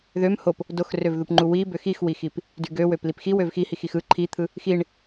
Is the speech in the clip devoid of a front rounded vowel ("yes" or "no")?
no